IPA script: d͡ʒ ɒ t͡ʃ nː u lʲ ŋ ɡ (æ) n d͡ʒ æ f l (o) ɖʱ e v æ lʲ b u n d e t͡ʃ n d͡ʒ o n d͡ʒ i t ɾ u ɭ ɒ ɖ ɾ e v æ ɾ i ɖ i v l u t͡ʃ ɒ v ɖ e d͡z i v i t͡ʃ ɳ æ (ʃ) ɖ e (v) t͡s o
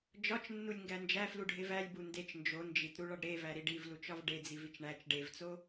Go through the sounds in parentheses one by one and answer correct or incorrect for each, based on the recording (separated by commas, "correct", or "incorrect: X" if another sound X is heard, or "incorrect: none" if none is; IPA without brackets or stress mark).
correct, incorrect: u, incorrect: t͡ʃ, correct